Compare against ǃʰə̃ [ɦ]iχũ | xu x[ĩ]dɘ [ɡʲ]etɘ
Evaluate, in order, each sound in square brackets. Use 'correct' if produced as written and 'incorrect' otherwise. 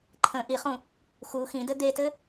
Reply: incorrect, correct, incorrect

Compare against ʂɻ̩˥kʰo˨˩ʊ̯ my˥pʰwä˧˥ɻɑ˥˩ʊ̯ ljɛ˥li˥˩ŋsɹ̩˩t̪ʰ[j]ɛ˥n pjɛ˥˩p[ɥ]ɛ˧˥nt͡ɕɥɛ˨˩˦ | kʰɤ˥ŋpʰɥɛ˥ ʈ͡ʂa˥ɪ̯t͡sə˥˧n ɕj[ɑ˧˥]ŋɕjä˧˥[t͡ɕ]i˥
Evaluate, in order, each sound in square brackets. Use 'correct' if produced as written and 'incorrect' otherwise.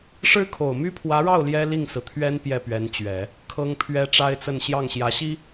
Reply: incorrect, correct, incorrect, incorrect

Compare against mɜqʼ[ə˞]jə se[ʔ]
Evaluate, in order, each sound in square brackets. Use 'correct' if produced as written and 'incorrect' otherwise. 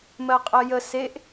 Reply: incorrect, correct

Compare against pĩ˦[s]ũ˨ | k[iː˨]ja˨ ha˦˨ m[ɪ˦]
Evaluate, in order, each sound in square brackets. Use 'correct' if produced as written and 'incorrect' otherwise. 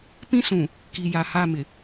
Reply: correct, incorrect, incorrect

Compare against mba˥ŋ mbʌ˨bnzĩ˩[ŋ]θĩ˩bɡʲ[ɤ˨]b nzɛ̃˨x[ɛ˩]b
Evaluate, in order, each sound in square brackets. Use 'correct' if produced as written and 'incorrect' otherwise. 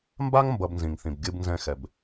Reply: correct, incorrect, correct

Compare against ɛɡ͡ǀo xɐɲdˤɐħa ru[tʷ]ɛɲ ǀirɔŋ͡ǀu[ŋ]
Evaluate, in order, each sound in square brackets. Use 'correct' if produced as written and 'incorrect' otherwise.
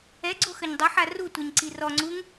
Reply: correct, correct

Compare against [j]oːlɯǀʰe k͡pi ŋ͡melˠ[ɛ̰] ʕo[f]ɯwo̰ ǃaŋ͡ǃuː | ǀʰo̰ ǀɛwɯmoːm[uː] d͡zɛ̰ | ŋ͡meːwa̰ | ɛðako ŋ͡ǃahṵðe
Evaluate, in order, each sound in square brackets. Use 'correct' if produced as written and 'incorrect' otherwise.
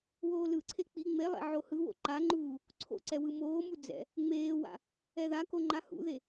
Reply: incorrect, correct, incorrect, incorrect

